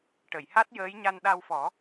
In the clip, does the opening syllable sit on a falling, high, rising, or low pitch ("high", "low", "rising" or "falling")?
low